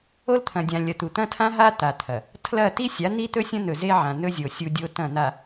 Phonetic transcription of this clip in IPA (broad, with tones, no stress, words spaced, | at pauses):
o˦lt̪ʰɐ̃˨ dʲã˨lʲɐ˨t̪u˨ t̪ɐ̃˦tʰã˦ɦa˦ t̪a˨t̪ʰɐ˨ | tʰlɐ˦˨ ti˦sʲa˨˦ n̪i˦t̪ɵ˦sʲɐ̃˦n̪ɵ˨ ze˦ ʕã˨nɵ˦zʲo˨ sʲu˦dʲo˦tɐ̃˦˨ n̪a˨